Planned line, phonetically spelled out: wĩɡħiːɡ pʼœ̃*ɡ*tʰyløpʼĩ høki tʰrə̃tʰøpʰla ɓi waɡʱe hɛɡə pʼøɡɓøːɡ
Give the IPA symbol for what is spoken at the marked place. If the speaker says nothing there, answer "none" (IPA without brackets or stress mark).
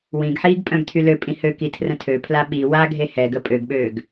ɡ